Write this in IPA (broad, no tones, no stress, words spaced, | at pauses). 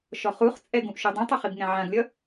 ʃɔχuχt͡sʼɛ ɡũʔʃudˤĩtˤʏ χibŋɛ̃ʕãɡlʲʌ